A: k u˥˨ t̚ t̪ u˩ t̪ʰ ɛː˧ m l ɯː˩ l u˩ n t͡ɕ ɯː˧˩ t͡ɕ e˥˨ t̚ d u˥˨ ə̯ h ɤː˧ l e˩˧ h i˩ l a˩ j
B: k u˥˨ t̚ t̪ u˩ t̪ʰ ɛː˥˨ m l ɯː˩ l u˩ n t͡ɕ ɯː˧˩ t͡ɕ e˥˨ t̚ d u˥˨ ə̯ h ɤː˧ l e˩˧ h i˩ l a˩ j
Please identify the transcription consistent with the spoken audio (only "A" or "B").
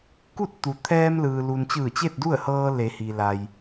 A